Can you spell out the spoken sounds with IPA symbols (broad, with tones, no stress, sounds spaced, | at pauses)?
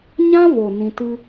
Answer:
ɲ ã˦ v o˨ n ĩ˧ t ɨ˦